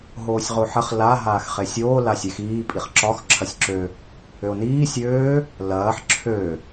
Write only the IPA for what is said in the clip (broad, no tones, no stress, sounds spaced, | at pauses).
ɦ oː sʲ ʁ o ħ ɐ χ l a ɦ aː x χ e sʲ oː l a sʲ e x iː pʼ i χ ǁ ɒ x ǁʰ ɐ sʲ ǁ ø | ø o̯ n iː sʲ øː | l ɐː ħ ǁʰ ø